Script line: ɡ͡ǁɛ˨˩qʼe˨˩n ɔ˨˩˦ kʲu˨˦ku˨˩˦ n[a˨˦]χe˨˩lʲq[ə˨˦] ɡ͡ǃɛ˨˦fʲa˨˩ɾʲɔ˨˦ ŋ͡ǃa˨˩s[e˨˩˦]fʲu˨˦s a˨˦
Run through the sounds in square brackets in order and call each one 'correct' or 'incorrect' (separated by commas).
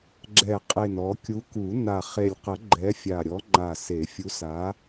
incorrect, incorrect, correct